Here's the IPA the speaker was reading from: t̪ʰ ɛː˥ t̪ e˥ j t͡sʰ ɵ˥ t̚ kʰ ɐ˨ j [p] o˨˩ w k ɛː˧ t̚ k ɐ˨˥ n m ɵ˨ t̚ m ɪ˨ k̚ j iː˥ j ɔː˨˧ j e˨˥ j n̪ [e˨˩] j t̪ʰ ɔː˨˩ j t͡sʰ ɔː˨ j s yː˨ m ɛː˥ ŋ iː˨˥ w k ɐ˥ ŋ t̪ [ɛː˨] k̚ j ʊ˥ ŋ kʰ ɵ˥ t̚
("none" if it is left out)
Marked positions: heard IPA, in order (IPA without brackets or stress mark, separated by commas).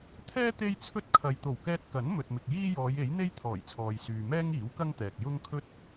t̪, e˥, ɛː˨